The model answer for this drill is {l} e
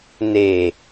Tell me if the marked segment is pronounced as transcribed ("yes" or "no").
no